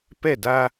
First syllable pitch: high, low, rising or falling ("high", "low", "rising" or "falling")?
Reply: falling